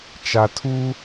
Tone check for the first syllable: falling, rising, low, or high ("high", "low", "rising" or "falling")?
low